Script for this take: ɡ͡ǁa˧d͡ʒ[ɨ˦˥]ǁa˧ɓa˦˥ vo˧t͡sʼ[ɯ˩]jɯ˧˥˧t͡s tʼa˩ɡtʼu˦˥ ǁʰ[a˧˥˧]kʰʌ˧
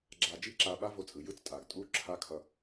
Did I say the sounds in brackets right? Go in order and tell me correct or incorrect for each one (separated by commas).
incorrect, correct, correct